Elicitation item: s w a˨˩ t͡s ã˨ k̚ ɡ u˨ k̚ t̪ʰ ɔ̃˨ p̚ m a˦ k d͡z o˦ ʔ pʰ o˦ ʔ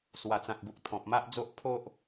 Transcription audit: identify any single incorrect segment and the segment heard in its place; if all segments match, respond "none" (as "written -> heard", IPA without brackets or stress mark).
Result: k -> ʔ